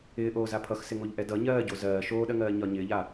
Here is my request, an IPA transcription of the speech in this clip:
ɪː ʔ oː z a pʰ ʌ x s ɪ ŋ o ʎ ʔ ɛ d ʌ ɲ ɜː ɟ o z ɜː ʃ oː ɗ ɜ ŋ ɜː ɲ ɒ ɲ ɪː ʎ a

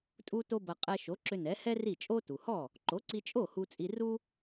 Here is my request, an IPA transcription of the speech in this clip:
tʼ u˥ t o˥ b ɐ˧ qʼ ɛ˧ ʃ o˩˥ ǁ ʏ˧ n ɛ˩˥ h ɛ˥ r i˥˩ t͡ʃʼ o˥ t u˩ h ɔ˥˩ | ǃ o˩˥ ǀ i˧ t͡ʃʼ o˥˩ h u˧ t͡sʼ i˧ r u˥

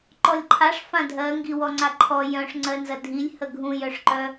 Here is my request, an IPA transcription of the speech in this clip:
ǃ ɔ lʲ ǃʰ a ʂ f ã dʱ ɜ ŋ ɡ i w ɔ ŋ͡ǀ a ǃʰ ɔ j œ̃ ʂ ŋ͡ǀ ɜ n z ɐ dʱ i lʲ h ə ɡʱ ũ j œ ʂ ǃ œ

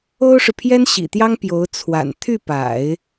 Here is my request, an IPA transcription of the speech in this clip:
o˥ ʊ̯ ʂ ɻ̩˨ pʰ j ɛ˥ n ɕ ḭ˨˩ t̪ j ɑ˥ ŋ p j o˧˥ ʊ̯ t͡sʰ w a̰˨˩ n t̪ʰ y˥˩ p a̰˨˩˦ ɪ̯

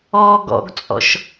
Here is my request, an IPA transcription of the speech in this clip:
ɔ ɡ ɔ̰ ɡ t͡sʼ ɔ̰ ʃ

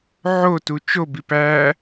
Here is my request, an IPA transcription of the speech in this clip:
ʕ o t u t͡ʃ o b i p æ

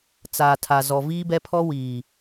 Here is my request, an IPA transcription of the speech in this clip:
t͡s aː˨ tʰ a˨ z ɔ˨ v iː˦ b ɛ˦ pʰ ɔ˦ w iː˨

